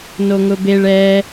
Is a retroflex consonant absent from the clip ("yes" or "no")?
no